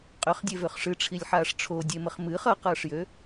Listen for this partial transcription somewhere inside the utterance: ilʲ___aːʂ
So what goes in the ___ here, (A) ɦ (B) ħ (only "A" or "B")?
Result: B